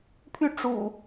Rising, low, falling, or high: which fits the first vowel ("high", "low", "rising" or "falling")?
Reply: falling